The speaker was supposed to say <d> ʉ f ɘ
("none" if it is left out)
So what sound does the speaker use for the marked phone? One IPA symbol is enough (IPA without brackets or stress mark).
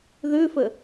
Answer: ð